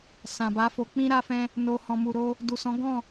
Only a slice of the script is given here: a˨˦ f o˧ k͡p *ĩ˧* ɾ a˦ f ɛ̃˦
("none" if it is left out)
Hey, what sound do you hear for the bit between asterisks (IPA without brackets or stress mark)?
ĩ˦